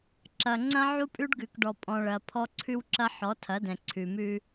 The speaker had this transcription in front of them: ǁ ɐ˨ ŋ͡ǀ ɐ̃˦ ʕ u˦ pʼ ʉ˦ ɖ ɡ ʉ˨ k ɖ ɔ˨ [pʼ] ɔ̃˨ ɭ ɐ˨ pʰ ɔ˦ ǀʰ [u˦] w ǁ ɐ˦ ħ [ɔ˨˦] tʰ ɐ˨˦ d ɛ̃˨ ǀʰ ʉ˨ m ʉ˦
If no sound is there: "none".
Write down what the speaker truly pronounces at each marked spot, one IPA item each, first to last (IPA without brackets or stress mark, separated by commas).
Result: pʼ, ʉ˦, ɔ˨˦